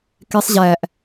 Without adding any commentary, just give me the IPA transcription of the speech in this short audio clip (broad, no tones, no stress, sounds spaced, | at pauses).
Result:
k e sˤ ʑ æ ʔ